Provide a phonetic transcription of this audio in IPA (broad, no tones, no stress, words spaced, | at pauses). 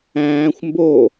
æ̃ːxʷ mbo